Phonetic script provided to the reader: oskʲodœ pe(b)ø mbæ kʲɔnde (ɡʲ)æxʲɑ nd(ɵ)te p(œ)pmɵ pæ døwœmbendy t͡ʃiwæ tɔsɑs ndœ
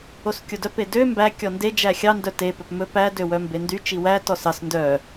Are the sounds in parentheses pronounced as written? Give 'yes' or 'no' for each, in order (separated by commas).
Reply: no, no, no, yes